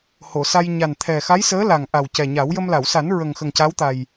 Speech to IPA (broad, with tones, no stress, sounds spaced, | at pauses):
h o˨˩˨ s a˧ j ɲ a˨˩ n t̪ʰ ɛ˨˩ x a˧˥ j s əː˧˥ l a˨˩ ŋ ʔ a˨˩ w c ɛ˨˩ ɲ a˨˩˦ w j ə˧ m l a˨˩˨ w s a˨˩˦ n ɹ ə˨˩ ŋ x ə˨˩ ŋ c a˧˥ w t̪ a˨˩ j